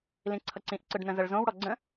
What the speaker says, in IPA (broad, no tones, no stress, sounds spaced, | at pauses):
l ĩ ǀʰ ʌ ǀ ĩ ʔ ǀ ɯ ɖ n ə̃ z ə ɭ z õ w ɽ ɔ ɡ͡ǀ ə̃